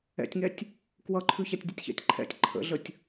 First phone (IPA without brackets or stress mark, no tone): ɛ̰